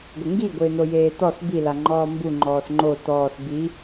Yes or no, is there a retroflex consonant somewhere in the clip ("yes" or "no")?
no